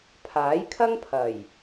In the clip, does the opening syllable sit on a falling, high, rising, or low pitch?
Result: rising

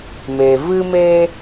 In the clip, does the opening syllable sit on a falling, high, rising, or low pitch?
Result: low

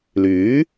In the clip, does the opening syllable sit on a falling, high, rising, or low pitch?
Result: rising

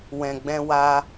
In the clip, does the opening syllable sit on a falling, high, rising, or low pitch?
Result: low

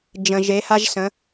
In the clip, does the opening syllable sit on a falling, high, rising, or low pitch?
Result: low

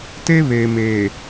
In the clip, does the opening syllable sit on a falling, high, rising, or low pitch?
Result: high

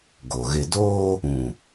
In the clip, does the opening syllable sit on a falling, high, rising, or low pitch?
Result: low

